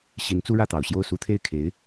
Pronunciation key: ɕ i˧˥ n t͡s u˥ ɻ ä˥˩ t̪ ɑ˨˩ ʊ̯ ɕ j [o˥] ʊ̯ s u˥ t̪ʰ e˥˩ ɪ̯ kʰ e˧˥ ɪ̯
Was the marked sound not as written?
yes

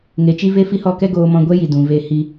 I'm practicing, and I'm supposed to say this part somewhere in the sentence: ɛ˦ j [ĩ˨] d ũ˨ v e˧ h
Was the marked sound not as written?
yes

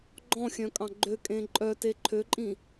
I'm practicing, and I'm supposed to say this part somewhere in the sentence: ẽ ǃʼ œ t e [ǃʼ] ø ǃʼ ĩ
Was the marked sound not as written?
yes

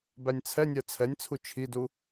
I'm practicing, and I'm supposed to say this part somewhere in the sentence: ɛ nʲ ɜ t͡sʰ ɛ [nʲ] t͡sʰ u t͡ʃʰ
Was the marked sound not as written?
no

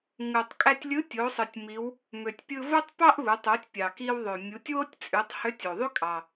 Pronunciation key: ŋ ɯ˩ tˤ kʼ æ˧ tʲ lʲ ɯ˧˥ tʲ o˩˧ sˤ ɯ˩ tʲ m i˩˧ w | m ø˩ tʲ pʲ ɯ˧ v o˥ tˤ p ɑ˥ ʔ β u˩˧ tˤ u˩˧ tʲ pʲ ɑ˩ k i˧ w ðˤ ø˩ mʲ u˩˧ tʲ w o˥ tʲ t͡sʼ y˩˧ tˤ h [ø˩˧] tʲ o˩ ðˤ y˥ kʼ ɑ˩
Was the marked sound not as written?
yes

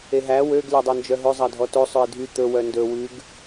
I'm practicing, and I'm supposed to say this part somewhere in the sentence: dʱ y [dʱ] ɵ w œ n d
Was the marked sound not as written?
yes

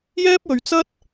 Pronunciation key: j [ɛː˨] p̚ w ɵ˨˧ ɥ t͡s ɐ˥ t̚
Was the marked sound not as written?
yes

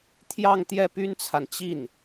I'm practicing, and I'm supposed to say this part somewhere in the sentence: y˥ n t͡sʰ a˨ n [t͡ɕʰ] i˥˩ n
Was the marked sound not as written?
yes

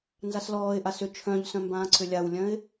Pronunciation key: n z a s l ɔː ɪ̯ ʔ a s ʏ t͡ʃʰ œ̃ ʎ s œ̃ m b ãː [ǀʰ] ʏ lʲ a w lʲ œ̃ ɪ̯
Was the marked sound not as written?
no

